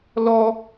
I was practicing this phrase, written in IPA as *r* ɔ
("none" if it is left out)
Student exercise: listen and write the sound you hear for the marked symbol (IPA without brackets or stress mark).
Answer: l